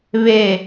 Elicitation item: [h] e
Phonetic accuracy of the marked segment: incorrect: β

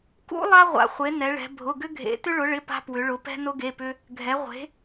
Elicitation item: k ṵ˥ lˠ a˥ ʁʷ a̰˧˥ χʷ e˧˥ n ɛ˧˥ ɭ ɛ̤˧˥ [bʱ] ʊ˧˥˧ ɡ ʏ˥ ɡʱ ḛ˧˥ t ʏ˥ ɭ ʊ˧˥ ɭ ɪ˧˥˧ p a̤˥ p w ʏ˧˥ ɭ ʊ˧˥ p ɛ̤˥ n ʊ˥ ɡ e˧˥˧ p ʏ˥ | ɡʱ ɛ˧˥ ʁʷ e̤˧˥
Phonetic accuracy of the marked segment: correct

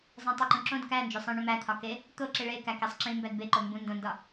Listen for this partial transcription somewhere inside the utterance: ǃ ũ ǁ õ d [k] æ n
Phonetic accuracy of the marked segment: correct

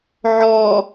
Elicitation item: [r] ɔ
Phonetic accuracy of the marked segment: incorrect: ʕ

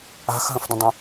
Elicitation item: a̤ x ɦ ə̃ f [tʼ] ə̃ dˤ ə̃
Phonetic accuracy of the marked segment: incorrect: d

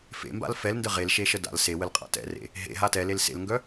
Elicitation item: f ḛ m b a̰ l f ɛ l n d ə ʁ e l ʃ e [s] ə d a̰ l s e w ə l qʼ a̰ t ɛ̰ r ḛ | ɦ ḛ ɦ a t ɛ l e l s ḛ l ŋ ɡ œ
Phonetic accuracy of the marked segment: incorrect: ʃ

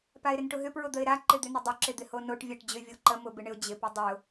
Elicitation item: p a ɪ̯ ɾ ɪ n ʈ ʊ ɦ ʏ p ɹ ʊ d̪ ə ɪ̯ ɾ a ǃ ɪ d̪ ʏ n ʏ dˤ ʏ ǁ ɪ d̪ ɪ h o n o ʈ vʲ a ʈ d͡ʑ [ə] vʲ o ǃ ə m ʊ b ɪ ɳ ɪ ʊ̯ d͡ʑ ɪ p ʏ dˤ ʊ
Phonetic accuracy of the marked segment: incorrect: ʏ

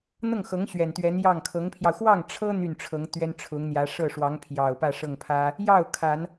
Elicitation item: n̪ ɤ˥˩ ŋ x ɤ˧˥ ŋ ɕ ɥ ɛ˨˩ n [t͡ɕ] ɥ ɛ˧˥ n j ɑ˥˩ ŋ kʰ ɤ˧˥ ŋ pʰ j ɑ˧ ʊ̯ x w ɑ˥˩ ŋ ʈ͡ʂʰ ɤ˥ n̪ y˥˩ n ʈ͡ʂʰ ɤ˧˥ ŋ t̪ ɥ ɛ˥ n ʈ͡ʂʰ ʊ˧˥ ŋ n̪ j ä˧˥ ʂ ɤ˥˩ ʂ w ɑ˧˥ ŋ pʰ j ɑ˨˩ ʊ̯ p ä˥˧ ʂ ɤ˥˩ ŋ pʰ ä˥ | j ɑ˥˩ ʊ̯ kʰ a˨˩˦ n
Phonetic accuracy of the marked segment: incorrect: t̪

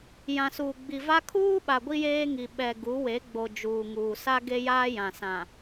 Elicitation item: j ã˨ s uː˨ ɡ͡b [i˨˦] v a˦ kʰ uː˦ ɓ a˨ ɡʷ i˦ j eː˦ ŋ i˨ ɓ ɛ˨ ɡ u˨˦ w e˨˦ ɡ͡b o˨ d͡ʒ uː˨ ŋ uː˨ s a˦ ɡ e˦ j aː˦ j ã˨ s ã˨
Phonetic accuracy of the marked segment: incorrect: i˨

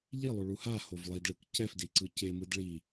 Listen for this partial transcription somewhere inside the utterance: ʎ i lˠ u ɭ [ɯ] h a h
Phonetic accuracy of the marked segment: incorrect: u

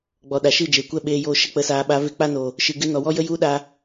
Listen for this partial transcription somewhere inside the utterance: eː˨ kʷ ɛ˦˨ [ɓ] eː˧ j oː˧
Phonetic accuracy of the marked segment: correct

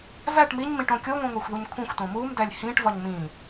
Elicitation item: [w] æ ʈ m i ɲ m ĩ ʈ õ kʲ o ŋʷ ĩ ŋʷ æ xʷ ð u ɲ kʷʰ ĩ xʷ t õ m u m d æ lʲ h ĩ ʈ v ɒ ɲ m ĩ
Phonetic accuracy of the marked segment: incorrect: v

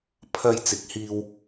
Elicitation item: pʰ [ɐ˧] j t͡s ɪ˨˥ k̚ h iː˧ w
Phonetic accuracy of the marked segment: correct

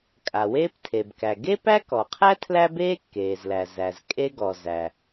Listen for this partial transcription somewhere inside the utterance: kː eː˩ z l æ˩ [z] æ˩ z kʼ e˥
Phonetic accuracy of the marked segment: correct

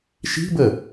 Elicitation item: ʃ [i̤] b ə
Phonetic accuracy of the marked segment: correct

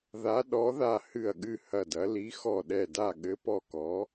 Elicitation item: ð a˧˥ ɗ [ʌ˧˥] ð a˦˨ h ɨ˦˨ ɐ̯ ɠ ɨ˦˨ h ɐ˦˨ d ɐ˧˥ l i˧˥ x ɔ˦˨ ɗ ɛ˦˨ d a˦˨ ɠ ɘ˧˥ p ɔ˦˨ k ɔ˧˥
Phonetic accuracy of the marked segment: incorrect: ɔ˧˥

